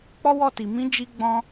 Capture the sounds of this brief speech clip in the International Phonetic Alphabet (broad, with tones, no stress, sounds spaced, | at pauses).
k͡p ɔ˦ w ɔ˦˨ t i˨ m ĩ˨˦ d͡ʒ i˧ ɡ͡b ɔ̃˦